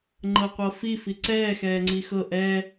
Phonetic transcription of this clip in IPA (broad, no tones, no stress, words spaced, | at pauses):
ŋ͡ǃɤqʷɤfi fiǀɛː xɛːŋ͡ǀixɤ ʔɛ